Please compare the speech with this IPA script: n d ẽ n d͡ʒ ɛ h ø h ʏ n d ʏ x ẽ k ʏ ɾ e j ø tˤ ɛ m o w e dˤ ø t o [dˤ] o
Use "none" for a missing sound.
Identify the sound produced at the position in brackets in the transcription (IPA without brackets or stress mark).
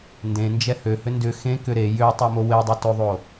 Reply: ðˤ